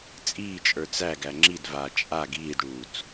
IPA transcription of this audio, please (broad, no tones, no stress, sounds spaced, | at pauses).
t͡sʼ iː t͡ʃʼ ə˞ t͡s æ ɡ æ ŋ͡ǁ i d v aː t͡ʃʼ a ɡ iː d ɽ uː t͡s